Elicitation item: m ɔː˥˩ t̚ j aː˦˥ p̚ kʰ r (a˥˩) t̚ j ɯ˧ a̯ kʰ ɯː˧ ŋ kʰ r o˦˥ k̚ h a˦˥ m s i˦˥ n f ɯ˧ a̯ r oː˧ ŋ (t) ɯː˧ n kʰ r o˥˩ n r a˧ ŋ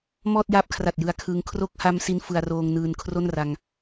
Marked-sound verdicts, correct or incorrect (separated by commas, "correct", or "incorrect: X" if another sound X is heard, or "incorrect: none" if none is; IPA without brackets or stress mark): incorrect: a˨˩, incorrect: n